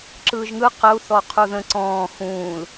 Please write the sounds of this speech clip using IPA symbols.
ǁ ɯː ʒ ŋ ɯ q ə u̯ θ ɔ qʰ u ð ə̃ ǀ ɔ̃ː x ũː l

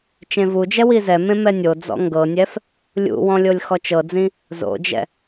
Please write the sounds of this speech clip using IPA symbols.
t͡ʃ ẽ v u d͡ʒ ɛ w i z ɛ m ẽ m ɛ nʲ o d͡z ɔ̰ ŋ ɡ ɤ nʲ ɛ f | lʲ ṵ w ɔ̃ lʲ o lʲ x ɔ t͡ʃ ɤ d͡z ĩ | z o̰ d͡ʒ ɛ̰

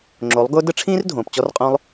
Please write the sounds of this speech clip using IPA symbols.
ŋ͡ǁ o˨˦ lˠ ɡ ʊː˦ d ə˦ ʈ͡ʂʰ ĩː˦ r dʱ õː˨ p t͡ɕ ɔ˦ r qʼ õ˦ lˠ

